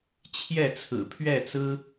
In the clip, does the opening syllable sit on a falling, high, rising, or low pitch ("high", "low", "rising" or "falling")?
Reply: falling